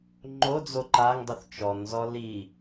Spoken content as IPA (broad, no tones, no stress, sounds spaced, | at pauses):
ŋ͡ǃ o d͡z o ǃ a ŋ dˤ o θ t͡ʃ ɔ n z ɔ l i